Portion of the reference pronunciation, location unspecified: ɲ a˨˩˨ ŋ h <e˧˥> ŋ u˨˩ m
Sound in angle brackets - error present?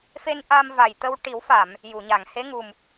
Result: no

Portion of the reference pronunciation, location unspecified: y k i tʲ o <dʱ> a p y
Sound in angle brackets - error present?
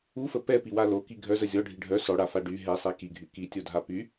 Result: no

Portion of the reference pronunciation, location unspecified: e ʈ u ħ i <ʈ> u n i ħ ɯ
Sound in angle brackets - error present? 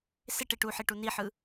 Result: no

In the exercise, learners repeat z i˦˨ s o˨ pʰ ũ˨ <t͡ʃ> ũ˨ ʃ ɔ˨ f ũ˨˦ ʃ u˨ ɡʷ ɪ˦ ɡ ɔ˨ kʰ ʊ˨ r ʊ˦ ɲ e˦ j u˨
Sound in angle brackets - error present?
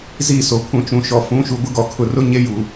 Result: no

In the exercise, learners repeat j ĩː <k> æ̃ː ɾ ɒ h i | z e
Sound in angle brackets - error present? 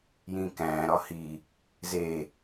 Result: no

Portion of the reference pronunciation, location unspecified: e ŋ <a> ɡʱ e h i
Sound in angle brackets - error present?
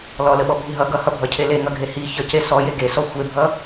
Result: yes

